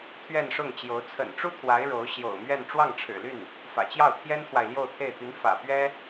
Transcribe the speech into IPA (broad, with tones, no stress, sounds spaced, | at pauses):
t̪ʰ ɥ ɛ˥˧ n ʂ ʊ˥˩ ŋ t͡ɕ j o˧˥ ʊ̯ t͡sʰ ə̰˨˩ n ʈ͡ʂ u˥ t̪ʰ w a˧˥ ɪ̯ ɻ o˧˥ ʊ̯ ɕ j o̰˨˩ ʊ̯ m ɥ ɛ˥˧ n ʈ͡ʂ w ɑ˥˩ ŋ ʈ͡ʂʰ ɻ̩˨˩ l y˥˩ n | f ä̰˨˩ t͡ɕ j ɑ˥˩ ʊ̯ t̪ʰ j ɛ˥ n t̪ʰ w a˨ ɪ̯ l j o˥˧ ʊ̯ t̪ʰ e˥˩ ɪ̯ t̪ y˧˥ n f ä̰˨˩ p ɥ ɛ˥